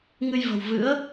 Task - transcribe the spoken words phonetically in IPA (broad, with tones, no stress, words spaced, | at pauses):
ŋɨ˧jvə̤˨˩w vɨ̰˧˥ə̯